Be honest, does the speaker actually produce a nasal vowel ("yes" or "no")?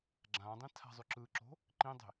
yes